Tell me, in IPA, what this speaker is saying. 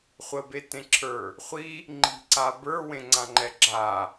χʷ ə b e t ẽ ǁʰ ə˞ | χʷ i | ŋ͡ǃ i̤ ǀ a b ə˞ w ẽ ŋ͡ǀ ã ŋ͡ǃ ɛ ɡ͡ǁ a

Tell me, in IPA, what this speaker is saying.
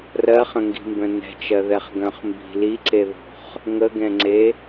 r ɜ χ ə̃ ŋ ɡ i̤ m b œ̃ n ɛ̤ t͡ʃ ɜ ð ɛ χ ɡ œ̃ χ m b i̤ l i ǀ e ð o̤ χ | ŋ ə ɡ ɛ̃ ŋ͡ǀ e

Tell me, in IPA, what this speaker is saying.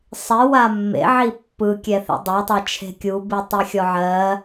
sˤ i w a mː ḛ ʕ i pː ɯ kʲ ɛ θ ḛ dˤ e tˤ a t͡ʃʰ e̤ kʲ u b i tˤ e xʲ ɔ ʕ ɜ

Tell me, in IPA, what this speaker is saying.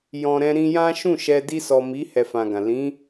j ɔ̃˨ ɾ ɛ̃˧ ɾ ĩ˧ j ã˦ ʃ ũ˦˨ ʃ ɛ˧ d i˧ s ɔ˨ m i˨˦ h ɛ˧ f ã˨ ɡ ã˨ l ĩ˨˦

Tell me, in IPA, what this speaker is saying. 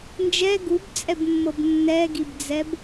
n d͡ʒ ɛ ɡ u b t͡sʼ ɛ b mː ɤ b nː ɛ ɡ i b d͡z ɛ b

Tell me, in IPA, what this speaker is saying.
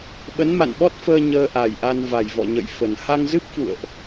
ɓ ə˨˦ n m a̰˧˨ n ɓ ɔ˦˥ t̚ f əː˧ ɲ əː˧ ʔ a˨˩ j ʔ a˧ n v a˨˩ j v ɔ̰˧˨ ɲ ə̰˧˨ j f ə˨˩ n h a˧ ŋ z ɨ˦˥ p̚ f ṵ˧˨ ə̯ ʔ

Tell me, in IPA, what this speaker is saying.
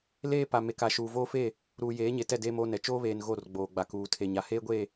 l eː˦ p a˨ m e˨ k a˨ ʃ uː˨ v oː˦ f e˦˨ | ɾ uː˨ j eː˨˦ ɲ e˨ t ɛ˦˨ d eː˦ m oː˦ n ɛ˨ t͡ʃ oː˦ β eː˨ n ɣ o˦˨ r ɡ͡b oː˨ ɡ͡b a˨ k uː˨ tʰ e˨ ɲ a˨ h eː˦ ɡʷ e˦˨

